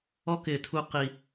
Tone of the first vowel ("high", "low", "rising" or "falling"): high